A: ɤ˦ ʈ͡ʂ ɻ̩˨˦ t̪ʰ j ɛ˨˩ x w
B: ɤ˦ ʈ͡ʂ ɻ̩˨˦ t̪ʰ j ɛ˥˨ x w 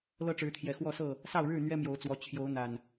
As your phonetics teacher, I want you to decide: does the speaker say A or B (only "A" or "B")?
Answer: A